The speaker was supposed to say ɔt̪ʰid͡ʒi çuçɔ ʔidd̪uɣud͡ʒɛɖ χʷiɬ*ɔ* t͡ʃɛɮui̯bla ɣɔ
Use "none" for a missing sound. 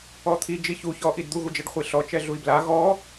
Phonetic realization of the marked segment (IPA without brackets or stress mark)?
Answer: ɔ